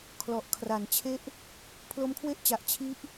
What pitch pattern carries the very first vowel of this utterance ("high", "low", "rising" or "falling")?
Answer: low